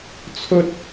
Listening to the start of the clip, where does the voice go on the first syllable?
high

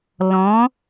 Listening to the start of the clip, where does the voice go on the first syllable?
rising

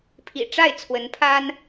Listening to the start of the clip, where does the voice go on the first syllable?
low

